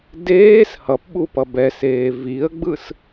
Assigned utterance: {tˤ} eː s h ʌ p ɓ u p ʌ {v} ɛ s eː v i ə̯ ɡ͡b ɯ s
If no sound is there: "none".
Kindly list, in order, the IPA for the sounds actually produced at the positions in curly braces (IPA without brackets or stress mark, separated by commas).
d, b